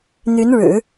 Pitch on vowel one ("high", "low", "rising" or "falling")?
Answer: rising